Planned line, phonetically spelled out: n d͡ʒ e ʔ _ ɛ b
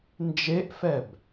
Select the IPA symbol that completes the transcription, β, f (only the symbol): f